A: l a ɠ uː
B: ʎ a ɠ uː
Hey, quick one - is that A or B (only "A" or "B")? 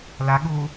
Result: A